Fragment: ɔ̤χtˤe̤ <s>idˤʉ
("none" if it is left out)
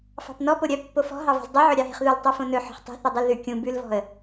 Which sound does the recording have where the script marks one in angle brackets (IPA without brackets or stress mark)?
θ